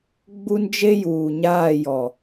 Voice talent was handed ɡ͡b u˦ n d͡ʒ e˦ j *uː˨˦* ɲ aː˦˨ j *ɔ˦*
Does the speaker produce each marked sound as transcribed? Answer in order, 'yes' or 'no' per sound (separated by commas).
no, no